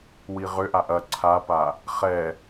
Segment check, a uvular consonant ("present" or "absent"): present